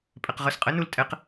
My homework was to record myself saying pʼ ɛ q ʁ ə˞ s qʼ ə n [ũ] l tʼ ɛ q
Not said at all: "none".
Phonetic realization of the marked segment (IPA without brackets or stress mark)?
u